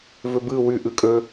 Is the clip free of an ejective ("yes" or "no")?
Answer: no